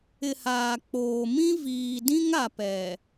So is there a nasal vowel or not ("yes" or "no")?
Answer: yes